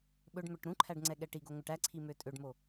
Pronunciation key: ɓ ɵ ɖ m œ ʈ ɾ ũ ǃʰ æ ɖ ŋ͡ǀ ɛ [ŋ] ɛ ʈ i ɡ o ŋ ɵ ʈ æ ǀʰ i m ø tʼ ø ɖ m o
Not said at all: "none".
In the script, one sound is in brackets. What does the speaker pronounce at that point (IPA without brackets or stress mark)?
ɠ